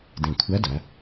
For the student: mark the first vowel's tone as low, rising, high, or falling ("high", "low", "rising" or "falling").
low